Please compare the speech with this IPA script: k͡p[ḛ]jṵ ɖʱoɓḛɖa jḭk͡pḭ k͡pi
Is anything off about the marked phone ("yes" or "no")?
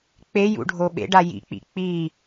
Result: yes